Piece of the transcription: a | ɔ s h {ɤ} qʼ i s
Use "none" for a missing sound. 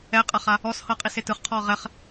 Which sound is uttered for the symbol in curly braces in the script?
ɤ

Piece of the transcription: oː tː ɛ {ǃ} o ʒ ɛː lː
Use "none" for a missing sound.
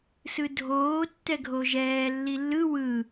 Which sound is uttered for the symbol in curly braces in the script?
ɡʱ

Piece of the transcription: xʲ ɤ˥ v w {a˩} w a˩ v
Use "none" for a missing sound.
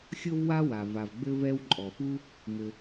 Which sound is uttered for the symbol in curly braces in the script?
a˥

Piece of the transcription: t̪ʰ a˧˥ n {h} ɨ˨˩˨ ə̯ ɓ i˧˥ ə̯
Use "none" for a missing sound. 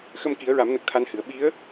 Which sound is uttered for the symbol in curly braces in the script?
h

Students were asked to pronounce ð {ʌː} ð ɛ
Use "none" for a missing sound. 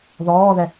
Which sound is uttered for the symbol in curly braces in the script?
ɔː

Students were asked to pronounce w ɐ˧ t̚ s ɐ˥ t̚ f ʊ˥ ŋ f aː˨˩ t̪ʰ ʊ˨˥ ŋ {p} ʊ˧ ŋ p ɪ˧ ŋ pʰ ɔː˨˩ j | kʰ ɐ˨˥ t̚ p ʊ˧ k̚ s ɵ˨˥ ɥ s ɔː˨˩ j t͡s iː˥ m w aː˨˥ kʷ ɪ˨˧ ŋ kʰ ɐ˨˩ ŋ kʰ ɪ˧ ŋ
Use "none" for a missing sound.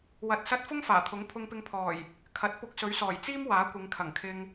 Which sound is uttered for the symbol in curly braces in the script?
pʰ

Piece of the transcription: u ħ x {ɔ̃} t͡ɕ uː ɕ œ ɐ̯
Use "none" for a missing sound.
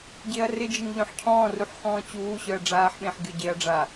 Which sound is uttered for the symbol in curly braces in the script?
ɔ̃ː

